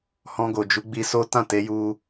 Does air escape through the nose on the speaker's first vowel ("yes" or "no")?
yes